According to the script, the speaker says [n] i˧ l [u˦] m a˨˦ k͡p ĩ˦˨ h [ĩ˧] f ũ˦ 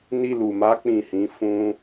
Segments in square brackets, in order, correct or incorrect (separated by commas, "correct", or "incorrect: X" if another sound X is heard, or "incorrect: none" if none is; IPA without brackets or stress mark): correct, incorrect: u˨, incorrect: ĩ˨˦